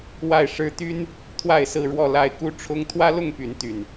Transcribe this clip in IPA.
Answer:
wa˥˨ɪ̯ ʂɻ̩˦ t̪y˦n | t̪ʰwa˥˨ɪ̯sɹ̩˥˨ɻwɔ˥˨la˥˨ɪ̯ ku˦ ʈ͡ʂʰʊ˦ŋ t̪ʰwä˦lʊ˥˨ŋ py˨˦nt̪y˨˩n

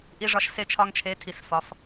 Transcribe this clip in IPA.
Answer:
ʔi˧ʐɒ˧ʃ se˧t͡ʃʰɒ˧ŋt͡ʃʰe˨˦ tʰi˨sfɒ˨˦f

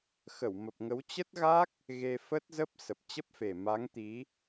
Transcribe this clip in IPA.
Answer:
xə˧˩wmə˨˩p̚ŋə˨˦w t͡ɕə˦˥t̚ɣa˦˥k̚ | ɣe˧ fə˦˥t̚zə˦˥p̚ sə˨˩p̚t͡ɕə˦˥p̚fe˨˩ ma˨˦ŋt̪i˨˦

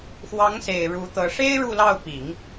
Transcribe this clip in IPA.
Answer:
xwɑ˧˥ŋse˨˩ɪ̯ ɻu˧˥t̪ɤ˧˥ ʂe˥ɪ̯ ɻu˥˧lɑ˥˩ʊ̯ pi˨˩˦ŋ

